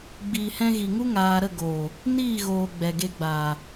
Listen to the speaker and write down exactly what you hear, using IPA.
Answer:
ɡ͡biː˨hɛ̃˧ɣi˨ŋu˦ ŋaː˧ ɾə˦˨ɡoː˨ | niː˦˨ɣoː˨ ɡ͡bɛ˨ɡe˧ɡ͡baː˨

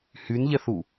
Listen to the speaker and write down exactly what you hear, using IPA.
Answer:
hynʎɛθu

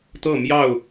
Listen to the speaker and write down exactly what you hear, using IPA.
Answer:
t̪ɤ˥˨ mjɑ˥˨ʊ̯

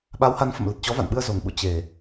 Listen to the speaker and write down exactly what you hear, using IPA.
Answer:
ɓa˨˦wha˨˦nfə̰˧˨m lə˨˩t̚t͡ɕɔ˨˦va̰˧˨nɓɨ˧ə̯ zo˨˩ŋ ɓṵ˧˨ t͡ɕe˨˩

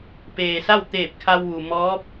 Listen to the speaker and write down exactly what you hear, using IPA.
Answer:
peː˩ sa˥˨wt̪eː˧˩p̚kʰa˧wʋu˩ mɔː˧˥p̚

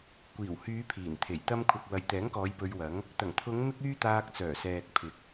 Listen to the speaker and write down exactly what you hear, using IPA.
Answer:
kʷiː˨˩whyː˨˧ pʰiː˨˩nt̪ʰe˨˩jt̪ɐ˥m kʷʰɐ˨k̚wɐ˨jt̪ɛː˨˥ŋkɔː˨˧j pɵ˧ɥwɐ˨˥ŋ | t̪ɐ˨˩ŋt̪ʰʊ˨˧ŋ mɪ˥k̚yː˥ t̪aː˧k̚t͡sœː˨˩sɛː˨k̚pʰɪ˨˥k̚

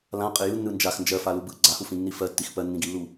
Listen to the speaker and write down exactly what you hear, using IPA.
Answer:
lãqʼɪ jɯnːɯ nd͡ʒax nd͡ʒɜfalu bɯ ɡ͡ǀahufĩnːi fɜtːix pɜnːĩɡilːu

